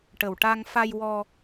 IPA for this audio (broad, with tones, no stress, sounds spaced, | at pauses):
ʈ ə˨˩ w ʈ a˧ ŋ f a˧ j w ɔ˧